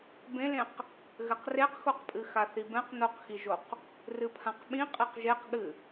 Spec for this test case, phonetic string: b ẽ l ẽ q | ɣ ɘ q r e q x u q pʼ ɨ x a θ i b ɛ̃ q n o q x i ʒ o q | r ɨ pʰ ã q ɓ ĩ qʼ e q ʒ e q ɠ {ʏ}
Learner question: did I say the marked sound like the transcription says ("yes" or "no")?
no